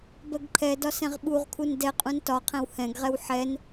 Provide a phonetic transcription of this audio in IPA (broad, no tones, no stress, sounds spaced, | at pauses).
b ɜ ɡ ǃʰ ɛ d ɒ s ɛ̃ ʁ ɓ u ʁ kʰ u n d ɛ qʼ ũ n t ɒ qʰ ɛ̃ w h ɛ̃ ɡ ʁ ɛ w ħ ɛ n